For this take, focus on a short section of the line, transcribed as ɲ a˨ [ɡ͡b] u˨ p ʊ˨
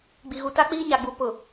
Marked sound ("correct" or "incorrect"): correct